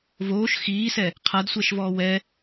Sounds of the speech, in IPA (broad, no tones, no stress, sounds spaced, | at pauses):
v oː ʃ x iː s ɛ | qʰ a d sʷ ɛ ʃ v ɔː w ɛ